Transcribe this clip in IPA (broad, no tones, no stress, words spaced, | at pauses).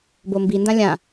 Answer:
bombindã lʲã